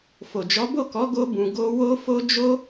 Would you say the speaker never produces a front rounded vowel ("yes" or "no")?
yes